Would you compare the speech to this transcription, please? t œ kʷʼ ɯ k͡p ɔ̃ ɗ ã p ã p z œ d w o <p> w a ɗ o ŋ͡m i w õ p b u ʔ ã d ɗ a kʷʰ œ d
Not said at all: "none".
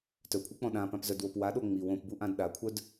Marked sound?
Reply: p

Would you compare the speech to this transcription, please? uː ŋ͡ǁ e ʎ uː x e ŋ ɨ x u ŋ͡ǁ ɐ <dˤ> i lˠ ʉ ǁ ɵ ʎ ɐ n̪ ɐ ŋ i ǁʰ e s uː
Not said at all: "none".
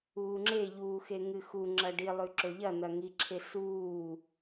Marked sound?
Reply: ɖ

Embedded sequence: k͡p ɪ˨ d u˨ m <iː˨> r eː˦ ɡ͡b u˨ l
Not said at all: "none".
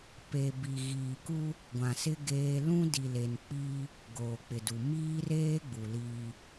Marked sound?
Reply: iː˦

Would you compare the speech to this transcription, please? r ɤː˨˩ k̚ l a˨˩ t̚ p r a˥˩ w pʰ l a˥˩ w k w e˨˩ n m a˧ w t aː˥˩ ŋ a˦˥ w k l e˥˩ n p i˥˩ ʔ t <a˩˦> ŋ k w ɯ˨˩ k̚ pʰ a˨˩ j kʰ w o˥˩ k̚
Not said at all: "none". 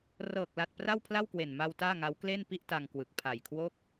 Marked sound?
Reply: a˧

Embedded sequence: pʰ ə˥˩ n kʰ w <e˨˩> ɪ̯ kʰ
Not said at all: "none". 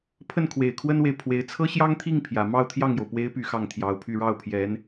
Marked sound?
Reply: e˨˩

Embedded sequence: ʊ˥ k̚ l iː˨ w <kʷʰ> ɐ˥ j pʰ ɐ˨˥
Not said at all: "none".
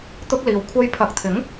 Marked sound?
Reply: kʷʰ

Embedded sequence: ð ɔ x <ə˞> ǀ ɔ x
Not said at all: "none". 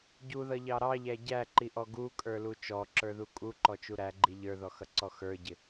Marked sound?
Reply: ʌ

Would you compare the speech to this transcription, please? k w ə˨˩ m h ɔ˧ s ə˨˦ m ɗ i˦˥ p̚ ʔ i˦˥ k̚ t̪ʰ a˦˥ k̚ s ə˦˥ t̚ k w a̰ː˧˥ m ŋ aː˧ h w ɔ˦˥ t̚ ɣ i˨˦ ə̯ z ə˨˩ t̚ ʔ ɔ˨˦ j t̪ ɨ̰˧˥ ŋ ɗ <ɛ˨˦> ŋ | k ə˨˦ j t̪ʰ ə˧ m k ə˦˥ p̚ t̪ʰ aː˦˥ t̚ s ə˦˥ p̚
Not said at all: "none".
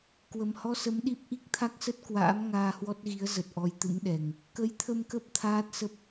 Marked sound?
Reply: ɛ˨˩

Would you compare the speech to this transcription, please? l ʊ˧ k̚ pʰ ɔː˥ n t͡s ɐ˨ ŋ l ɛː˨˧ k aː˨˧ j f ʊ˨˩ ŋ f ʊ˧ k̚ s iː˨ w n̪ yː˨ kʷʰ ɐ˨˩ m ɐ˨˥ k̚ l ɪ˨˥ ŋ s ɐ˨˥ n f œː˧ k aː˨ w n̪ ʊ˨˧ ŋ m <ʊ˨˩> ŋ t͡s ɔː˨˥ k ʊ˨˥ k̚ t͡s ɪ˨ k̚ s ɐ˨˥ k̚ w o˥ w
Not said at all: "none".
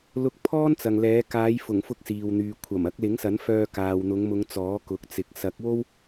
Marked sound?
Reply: ʊ˨˧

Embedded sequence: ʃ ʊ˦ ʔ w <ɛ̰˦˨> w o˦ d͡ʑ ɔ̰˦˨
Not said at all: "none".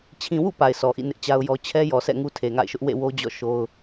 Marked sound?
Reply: ḛ˦˨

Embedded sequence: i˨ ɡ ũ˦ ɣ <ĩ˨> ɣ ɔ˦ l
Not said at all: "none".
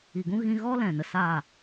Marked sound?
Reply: ĩ˧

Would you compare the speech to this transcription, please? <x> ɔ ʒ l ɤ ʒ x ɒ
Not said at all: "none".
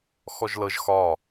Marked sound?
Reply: x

